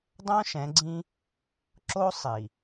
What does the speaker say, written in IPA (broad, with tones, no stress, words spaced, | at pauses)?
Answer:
dˤõ˦ʃɛ̃˨˦ɡ͡ǀĩ˦ | ǁo˦sˤi˨